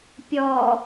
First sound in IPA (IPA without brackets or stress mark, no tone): pʲ